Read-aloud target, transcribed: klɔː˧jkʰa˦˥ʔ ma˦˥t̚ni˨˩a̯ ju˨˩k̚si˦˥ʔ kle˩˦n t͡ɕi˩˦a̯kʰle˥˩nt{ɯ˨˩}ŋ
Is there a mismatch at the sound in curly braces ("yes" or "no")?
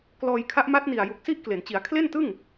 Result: yes